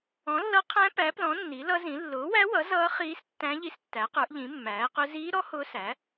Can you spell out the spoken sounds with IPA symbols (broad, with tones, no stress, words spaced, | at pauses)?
ɔ̃˩˥lːʌ˧˥qʰæ̃˧˥ pæ˩˥plɔ̃˩˥ nːi˩˥lʌ˧˥zĩ˩˥ lːʊː˩˥wæ˧˥wʌ˩˥ zʌː˧˥ χiː˧˥stːæ̃˧˥ ʎi˧˥stːæ˩˥qə˞˩˥ʔʎĩ˩˥ mːæː˩˥qʊ˧˥ ziː˧˥ɾɔ˧˥ hʊː˧˥sæ˩˥